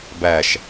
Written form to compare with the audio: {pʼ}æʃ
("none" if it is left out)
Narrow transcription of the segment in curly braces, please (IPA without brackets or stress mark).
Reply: b